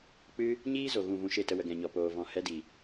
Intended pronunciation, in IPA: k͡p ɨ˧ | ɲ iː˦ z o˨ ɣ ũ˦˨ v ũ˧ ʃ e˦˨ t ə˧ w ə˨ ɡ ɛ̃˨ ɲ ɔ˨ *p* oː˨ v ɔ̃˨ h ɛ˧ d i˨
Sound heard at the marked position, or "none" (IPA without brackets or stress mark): p